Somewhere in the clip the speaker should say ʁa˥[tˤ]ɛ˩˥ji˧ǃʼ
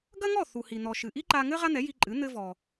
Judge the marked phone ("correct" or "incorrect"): incorrect